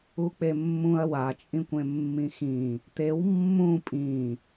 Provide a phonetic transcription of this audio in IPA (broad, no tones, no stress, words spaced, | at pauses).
uk͡pemːũɐ̯ wat͡ʃʼĩkʷ ẽmːĩxĩ | t̪ew mːũ pʼĩ